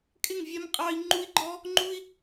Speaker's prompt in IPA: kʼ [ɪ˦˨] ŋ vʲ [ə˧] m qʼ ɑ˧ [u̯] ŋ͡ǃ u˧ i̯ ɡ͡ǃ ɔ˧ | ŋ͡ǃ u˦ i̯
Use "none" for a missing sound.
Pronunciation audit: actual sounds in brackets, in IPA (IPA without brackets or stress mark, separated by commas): ɪ˦˨, ɛ˧, i̯